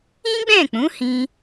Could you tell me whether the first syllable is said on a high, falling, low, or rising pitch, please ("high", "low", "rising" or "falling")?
high